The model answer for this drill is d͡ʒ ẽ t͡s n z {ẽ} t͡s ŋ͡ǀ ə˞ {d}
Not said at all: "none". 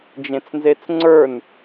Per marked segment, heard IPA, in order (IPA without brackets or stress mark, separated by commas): e, n